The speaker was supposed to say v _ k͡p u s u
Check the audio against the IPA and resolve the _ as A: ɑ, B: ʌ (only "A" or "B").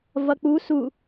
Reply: B